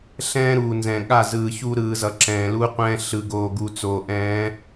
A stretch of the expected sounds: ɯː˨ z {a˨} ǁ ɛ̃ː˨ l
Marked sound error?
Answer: yes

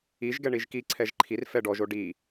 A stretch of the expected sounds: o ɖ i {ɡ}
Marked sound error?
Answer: yes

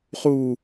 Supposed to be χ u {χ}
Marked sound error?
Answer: yes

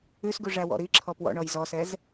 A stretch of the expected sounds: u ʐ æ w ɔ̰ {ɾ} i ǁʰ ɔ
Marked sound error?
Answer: no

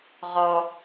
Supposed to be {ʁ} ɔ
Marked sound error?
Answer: no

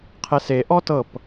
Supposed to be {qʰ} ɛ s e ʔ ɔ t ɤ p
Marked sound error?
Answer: no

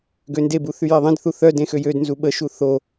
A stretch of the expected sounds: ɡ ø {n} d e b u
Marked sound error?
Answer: no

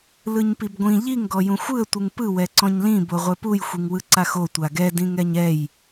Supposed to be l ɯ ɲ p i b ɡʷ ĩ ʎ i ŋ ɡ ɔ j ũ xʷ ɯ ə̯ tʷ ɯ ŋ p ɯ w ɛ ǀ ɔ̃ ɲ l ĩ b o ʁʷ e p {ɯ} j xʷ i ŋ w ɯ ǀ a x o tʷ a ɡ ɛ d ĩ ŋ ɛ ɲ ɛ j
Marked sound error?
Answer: yes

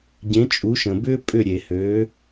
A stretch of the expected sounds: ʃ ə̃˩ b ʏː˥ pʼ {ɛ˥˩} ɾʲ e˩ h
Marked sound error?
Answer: yes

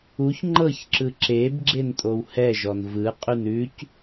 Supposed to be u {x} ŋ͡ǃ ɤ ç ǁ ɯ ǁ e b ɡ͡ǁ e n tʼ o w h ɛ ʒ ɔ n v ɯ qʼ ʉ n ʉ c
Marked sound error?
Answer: yes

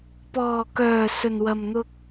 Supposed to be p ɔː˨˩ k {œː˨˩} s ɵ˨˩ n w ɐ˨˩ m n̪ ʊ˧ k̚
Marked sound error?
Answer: no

